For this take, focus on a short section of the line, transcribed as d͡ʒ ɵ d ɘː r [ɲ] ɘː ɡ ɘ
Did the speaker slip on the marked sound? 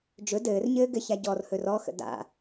no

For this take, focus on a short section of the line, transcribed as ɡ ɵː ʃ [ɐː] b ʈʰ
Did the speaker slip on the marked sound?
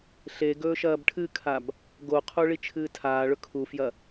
no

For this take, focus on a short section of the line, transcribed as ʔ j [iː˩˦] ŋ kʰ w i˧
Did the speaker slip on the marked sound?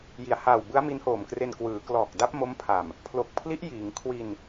no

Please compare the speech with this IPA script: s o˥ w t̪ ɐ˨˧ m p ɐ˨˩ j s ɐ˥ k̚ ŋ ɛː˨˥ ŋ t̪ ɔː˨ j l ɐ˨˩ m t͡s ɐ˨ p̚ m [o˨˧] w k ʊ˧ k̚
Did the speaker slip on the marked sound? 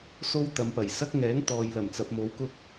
no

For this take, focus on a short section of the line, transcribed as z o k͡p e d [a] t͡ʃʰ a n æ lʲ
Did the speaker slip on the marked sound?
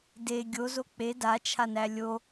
no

